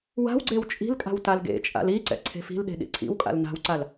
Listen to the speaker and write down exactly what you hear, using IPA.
w a̤ w ɡ͡ǀ e w t͡ʃʼ i̤ l kʼ a̤ w t a l ɡ ḛ t͡ʃʼ a̰ l i ǀ ɛ̰ ǀʰ e̤ f i̤ l ɗ e̤ ɗ ḭ ǀʰ ḭ w kʼ a̰ l n a̤ w ǀ a l

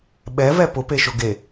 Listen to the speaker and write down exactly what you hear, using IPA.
ɓ ɛ v ɛ p ʊ p e ʃ ʊ ɡ e

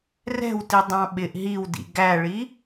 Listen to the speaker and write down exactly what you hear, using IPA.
r ɛ̤ w t i dˤ ɑ̃ ɓ ɪ ʔ ɦ i w d ḭ ɡ æ ɭ i

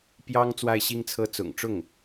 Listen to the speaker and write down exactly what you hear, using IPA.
p j ɑ˥ ŋ t͡s w a˥˩ ɪ̯ ɕ i˥ ŋ t͡sʰ ɤ˥˩ t͡s ʊ̰˨˩ ŋ ʈ͡ʂ ʊ˥˩ ŋ

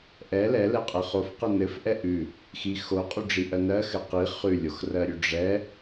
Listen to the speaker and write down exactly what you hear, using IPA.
ʔ ɛ l ɛ l ɛ qʼ ɘ χ o f q ɘ n ɘ f ʔ ɛ ʔ ʉ | x i x o qʼ y ɖ͡ʐ i ʔ ɜ n ɜ x ɘ q i χ ʉ lʲ o x r ɜ ɾʲ ʉ ɖ͡ʐ ɛ

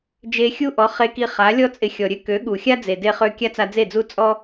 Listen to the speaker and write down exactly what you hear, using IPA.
d͡ʒ e˧ xʲ u˦ ʔ ɔ˨˦ χ e˧ k i˧ χ a˨˦ lʲ ɔ˦ t͡sʼ ɪ˧ xʲ ɔ˨ ɾʲ ø˦ k ø˨˦ ɠ u˨ xʲ a˦ d͡z e˨ d e˧ χ ø˧ kʲ a˦ t͡s a˧ d͡z e˦˨ d͡z u˦ t͡sʼ ɔ˦

